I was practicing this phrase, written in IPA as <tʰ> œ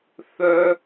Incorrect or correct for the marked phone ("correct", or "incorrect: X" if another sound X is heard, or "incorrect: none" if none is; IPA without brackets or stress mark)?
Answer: incorrect: θ